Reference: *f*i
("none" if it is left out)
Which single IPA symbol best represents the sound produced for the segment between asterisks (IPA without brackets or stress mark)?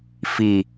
f